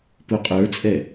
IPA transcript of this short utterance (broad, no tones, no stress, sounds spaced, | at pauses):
p u qʼ ə˞ t͡sʼ ɛ